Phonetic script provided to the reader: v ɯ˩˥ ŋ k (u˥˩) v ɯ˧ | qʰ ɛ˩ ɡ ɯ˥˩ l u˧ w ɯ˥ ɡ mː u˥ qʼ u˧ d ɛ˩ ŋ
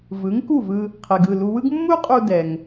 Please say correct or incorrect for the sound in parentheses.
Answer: correct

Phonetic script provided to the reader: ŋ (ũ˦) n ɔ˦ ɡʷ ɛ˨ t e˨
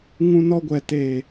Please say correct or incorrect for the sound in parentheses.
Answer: correct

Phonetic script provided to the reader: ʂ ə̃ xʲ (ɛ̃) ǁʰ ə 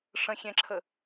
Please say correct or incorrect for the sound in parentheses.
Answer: correct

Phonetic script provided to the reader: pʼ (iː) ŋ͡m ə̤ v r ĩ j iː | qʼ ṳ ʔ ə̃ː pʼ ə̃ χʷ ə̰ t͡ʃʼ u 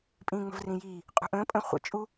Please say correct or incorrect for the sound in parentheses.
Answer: incorrect: ĩː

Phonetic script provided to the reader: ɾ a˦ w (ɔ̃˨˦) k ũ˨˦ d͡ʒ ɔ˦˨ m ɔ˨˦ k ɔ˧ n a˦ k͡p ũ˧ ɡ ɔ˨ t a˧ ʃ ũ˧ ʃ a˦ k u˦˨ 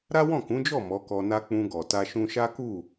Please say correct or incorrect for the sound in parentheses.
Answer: incorrect: ɔ̃˦˨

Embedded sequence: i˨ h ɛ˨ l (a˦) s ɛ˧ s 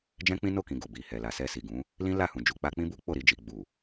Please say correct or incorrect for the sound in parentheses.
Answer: incorrect: a˨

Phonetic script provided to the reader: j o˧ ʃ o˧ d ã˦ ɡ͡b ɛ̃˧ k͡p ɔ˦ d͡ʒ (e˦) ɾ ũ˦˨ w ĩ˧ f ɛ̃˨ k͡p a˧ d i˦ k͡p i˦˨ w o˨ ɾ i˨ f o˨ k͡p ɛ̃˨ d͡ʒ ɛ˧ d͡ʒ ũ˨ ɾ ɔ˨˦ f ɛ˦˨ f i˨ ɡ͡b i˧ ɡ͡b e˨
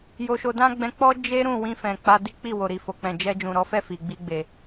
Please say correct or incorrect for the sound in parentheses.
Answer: correct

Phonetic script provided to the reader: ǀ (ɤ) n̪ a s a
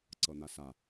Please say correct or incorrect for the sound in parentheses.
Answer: correct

